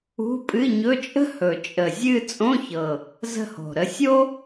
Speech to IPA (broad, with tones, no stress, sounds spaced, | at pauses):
ṳ˧˥˧ pʼ ɨ˧˥˧ ɲ ɵ˧˥˧ t͡ʃʼ ə̤˥ h ɵ˨˩ t͡ʃʼ ə˨˩ zʲ ɨ˥˧ t͡sʼ õ˧˥˧ ç ɤ˨˩ | z ə̤˥˧ h o̤˨˩ ɾ ə˥˧ sʲ o˥